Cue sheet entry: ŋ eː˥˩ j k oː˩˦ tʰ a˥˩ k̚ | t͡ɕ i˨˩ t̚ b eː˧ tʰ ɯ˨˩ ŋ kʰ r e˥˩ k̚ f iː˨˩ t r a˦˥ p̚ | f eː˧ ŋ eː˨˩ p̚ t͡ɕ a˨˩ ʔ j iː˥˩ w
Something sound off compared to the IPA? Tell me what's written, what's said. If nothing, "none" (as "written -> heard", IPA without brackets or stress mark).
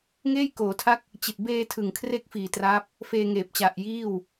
none